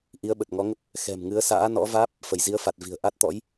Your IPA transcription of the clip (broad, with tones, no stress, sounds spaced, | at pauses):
ʔ i˨˦ ə̯ ɓ ə˨˩ t̚ ŋ ɔ˨˦ ŋ ə˦˥ p̚ | x ɛ̤˨˩ m ŋ ɨ˨˦ ə̯ s a̰ː˧˥ n ɔ̰˧˥ v aː˦˥ p̚ | f ə˧˩ j z i˨˦ ə̯ f a˨˩ t̚ v i̤˨˩ ə̯ ʔ a˦˥ t̚ t̪ ɔ̰˧˥ j